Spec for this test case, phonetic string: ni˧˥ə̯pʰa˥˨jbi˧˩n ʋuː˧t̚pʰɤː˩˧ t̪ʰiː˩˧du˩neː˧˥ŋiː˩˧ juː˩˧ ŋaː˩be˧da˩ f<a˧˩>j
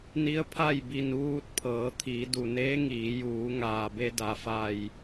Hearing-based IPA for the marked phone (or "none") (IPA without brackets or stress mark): a˧˩